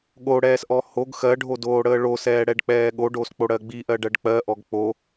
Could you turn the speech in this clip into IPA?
ɠoɽɛːsʔɔ hoɡ xɜɖʱodoːɽəː ɭosɛːɽɛɖk͡pɛː ɠoɖosk͡poɽɜ ɡ͡biʔɜɖɜɖ k͡pɜʔɔɡ k͡po

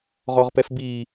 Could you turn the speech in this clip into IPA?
ʁɔʁpɛfbi

